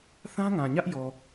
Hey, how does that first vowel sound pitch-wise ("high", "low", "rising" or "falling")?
high